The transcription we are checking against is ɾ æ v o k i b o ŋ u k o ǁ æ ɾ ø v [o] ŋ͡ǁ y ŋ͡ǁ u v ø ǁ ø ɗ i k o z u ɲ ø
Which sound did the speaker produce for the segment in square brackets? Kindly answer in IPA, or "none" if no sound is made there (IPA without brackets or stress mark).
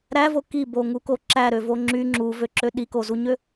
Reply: o